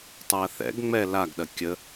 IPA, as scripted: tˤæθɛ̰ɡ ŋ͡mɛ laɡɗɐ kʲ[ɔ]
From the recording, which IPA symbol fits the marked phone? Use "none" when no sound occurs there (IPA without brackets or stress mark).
ə